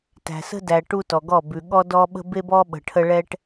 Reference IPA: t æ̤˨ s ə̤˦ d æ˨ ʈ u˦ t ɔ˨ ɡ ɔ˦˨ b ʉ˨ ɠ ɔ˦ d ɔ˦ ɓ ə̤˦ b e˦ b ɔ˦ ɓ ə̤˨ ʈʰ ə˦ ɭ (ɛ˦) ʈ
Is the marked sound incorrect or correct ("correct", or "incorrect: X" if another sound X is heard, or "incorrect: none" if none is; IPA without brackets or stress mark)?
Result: correct